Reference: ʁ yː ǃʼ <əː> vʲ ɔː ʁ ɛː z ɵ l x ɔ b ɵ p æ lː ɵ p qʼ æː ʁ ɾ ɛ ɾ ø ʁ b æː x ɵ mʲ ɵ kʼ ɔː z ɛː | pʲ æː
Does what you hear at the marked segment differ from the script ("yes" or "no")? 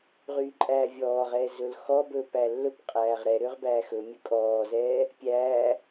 yes